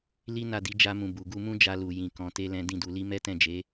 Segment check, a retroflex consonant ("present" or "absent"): absent